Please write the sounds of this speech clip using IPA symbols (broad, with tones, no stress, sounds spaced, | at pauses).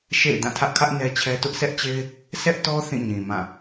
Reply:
ʃ ḛ˦˨ ɪ̯ d ã˦˨ tʰ ä˦ ʔ kʰ ä˦ ʔ n ɛ˦ t͡ɕʰ ɛ˦ t ʊ˦ ʔ s ɛ˦ ʔ t͡ɕ e˦ ɪ̯ | s ɛ˦ ʔ t ɔ˦ θ ĩ˦˨ ɲ ĩ˨ m ã˦˨